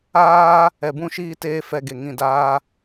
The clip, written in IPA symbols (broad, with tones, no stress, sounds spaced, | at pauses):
aː˦ | ɛ˨ b ũ˧ ʃ iː˧ t eː˧ f ɛ˧ ɡ e˨ ŋ ĩ˨ d aː˧